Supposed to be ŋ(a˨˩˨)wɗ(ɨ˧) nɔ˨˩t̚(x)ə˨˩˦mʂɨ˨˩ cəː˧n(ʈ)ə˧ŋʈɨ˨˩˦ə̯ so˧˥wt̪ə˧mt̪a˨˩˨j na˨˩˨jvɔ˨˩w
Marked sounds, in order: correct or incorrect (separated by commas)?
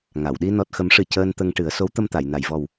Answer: correct, incorrect, correct, incorrect